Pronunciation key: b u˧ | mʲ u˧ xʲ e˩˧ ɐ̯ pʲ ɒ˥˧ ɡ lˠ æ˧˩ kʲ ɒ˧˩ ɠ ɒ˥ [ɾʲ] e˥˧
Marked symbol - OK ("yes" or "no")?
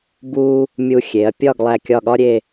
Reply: yes